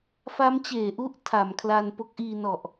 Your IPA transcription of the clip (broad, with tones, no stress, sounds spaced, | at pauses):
f a˦˥ m t͡ɕ eː˩˦ ʔ u˥˩ ʔ tʰ a˩˦ m kʰ l a˧ n p o˦˥ k̚ ʔ iː˧ n ɔ˨˩ ʔ